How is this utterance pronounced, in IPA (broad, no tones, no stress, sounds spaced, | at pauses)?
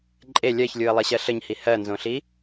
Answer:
ǃʼ e lʲ ɜ ç lʲ u ə̯ lˠ e ɕ ɜ ɬ ə ɲ h i h ɜ n z õ ɬ i